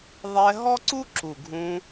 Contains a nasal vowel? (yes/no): yes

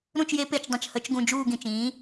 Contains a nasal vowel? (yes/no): yes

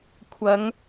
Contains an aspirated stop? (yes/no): yes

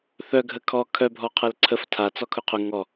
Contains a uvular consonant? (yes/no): yes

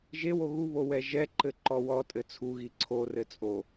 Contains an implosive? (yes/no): no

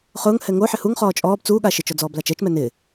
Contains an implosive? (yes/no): yes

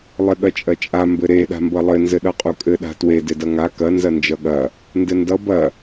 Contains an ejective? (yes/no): yes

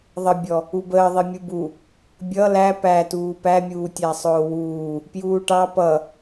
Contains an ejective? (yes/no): no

